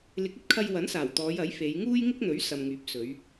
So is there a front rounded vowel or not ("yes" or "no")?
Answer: yes